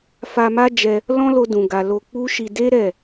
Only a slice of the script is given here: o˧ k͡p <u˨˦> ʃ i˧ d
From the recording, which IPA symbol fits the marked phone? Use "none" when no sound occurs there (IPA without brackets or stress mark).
u˦